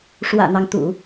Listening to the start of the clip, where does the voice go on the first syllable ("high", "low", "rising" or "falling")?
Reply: low